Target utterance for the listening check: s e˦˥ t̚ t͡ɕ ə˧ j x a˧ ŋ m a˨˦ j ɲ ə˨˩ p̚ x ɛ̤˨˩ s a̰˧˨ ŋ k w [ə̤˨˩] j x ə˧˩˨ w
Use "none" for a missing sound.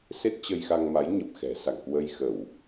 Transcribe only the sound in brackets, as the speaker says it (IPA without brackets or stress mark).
ə˧